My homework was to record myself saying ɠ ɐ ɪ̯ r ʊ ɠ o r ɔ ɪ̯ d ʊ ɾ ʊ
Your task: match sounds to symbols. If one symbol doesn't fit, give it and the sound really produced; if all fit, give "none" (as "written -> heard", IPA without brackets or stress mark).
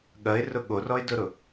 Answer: none